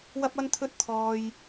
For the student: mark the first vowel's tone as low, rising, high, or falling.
high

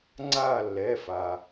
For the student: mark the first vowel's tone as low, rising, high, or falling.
falling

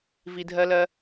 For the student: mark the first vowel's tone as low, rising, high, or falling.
low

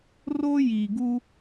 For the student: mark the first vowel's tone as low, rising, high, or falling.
high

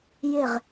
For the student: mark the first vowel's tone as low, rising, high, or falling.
falling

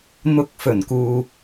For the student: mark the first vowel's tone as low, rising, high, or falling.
low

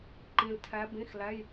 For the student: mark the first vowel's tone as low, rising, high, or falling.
low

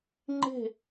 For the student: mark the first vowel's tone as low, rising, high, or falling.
falling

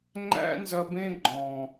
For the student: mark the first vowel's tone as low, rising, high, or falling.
high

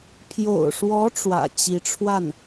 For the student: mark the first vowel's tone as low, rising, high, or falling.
low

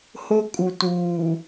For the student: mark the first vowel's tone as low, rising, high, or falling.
high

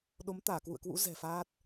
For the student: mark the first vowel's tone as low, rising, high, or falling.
rising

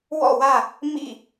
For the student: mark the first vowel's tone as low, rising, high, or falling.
falling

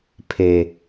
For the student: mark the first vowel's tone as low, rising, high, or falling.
low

